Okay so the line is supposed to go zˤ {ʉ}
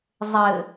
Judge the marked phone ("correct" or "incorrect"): incorrect